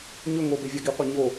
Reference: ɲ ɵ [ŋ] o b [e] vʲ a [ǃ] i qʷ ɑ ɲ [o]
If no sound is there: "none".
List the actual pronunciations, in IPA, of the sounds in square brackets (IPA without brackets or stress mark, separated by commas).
ŋ, e, ɡ, o